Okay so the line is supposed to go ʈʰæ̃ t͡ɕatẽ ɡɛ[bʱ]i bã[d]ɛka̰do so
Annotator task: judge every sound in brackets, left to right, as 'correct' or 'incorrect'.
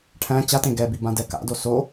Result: incorrect: b, correct

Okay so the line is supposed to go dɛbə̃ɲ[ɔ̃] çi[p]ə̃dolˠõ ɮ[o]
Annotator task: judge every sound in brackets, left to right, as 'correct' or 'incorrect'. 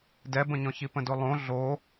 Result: correct, correct, correct

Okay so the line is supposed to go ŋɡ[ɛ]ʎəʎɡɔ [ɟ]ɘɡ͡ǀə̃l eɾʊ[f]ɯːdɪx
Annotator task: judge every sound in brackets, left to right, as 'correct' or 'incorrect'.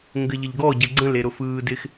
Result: incorrect: ɘ, correct, correct

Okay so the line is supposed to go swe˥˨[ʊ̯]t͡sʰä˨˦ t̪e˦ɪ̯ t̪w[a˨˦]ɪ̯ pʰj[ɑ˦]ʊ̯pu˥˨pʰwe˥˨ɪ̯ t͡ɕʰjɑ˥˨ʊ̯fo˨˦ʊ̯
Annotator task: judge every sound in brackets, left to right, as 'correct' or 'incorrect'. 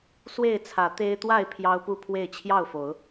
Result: incorrect: ɪ̯, incorrect: a˥˨, correct

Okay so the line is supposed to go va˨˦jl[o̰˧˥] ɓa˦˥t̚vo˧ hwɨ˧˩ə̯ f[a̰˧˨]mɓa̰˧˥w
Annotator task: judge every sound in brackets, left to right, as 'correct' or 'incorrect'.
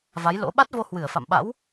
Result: correct, correct

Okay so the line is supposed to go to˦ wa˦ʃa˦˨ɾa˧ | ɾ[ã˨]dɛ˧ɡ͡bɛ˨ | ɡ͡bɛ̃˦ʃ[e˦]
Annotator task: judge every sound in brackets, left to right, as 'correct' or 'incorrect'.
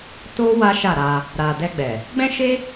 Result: incorrect: a˨, correct

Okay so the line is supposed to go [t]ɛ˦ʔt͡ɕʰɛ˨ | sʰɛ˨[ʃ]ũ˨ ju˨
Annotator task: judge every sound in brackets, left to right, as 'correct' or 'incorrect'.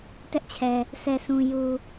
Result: correct, incorrect: s

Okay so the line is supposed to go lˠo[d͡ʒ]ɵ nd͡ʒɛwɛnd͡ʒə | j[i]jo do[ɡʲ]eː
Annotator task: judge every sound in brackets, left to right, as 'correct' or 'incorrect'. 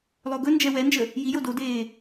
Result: incorrect: ɡ, correct, incorrect: d

